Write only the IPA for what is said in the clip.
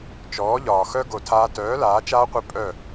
t͡ʃɔː˨˦ʎɒː˨ xœ˦ ɡo˧tʰaː˦ tœː˨˦ laː˨˦t͡ʃaː˦qʷi˧ pʼœ˦˨

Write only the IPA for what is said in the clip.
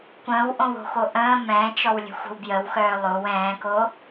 kʷə̃ːwʔõwo̤xo ʔə̃ː mɛ̃ːt͡ʃɔwlʲə̤xʷə̤w bjəwxœː lˠow ɛ̃ːko

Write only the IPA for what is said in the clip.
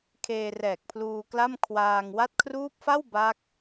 kʰeː˧rɛː˨˩k̚pʰluː˧kla˥˩m kʰwaː˧ŋ wa˦˥t̚kʰruː˦˥p̚fa˥˩w baː˦˥k̚

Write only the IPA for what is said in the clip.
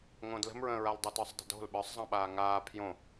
ŋõdlə̤mɹə̃ːɹal dˤətə˞sˤdˤə̤do̤l ɓə˞sˤzˤɑ̃ɓaː ŋaː pʰjõ

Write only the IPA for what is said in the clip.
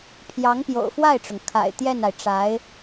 pʰjɑ˧˥ŋpjo̰˨˩ʊ̯fwa˥˩ɪ̯ʈ͡ʂʊ˩ŋ kʰa̰˨˩ɪ̯t̪jɛ˥˩na˩ɪ̯ ʈ͡ʂa˧˥ɪ̯

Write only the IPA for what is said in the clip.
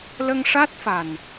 lə˧ŋʂa˦˥t̚fa˨˩n

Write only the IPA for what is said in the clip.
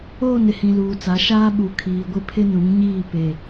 oː˦˨nɪ˨hĩ˨ luː˨t͡sa˨˦ʃaː˦ ɓu˨kʰiː˨ ɡʷɪ˦pʰɪ˦nũ˨˦ŋɲiː˦˨ pe˨

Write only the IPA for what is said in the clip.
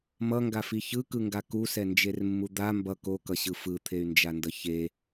mʌŋɡafi çɯkɯŋɡa kusɛnd͡ʒermːu d̪a mbʌ kokʌɕɯ fɯt̪ʰey̯nd͡ʒandʌ çe

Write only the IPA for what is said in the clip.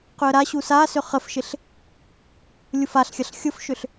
qʏə̯ɾaɕu sasʏ χəfʃɪɬ | lʲufaɬxʲɐɬ xʲʊfʃʏɬ

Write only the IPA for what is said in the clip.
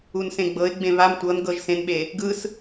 unsẽɡ͡bɤɪ̯ ɡ͡bẽβam tʷɤn ɡɤʒsẽnɓe | ɡɯs

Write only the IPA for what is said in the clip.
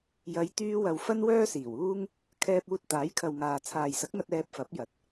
jɐ˨˧j t̪yː˧wɐ˨w fɐ˥nwœː˥siː˨˩wuː˥ŋ | kʰɛː˧p̚uː˧t̚ t̪aː˨˥jkʰɐ˨wŋaː˨ t͡sʰaː˨jsɐ˨˥k̚ŋɐ˧t̚ ɛː˧p̚ fɐ˨˥p̚jɐ˨˥t̚

